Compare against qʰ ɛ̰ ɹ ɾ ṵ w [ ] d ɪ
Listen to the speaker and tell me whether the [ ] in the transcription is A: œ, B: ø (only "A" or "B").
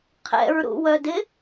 A